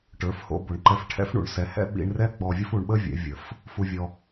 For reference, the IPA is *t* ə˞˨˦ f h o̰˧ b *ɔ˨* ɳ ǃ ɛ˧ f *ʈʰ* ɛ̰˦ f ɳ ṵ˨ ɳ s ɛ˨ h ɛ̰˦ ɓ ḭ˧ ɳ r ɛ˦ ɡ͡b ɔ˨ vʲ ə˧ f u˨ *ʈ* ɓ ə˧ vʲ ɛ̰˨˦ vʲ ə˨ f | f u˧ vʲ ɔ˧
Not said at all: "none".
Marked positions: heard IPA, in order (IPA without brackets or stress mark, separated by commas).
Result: ʈ, o˨, ʈʰ, ɳ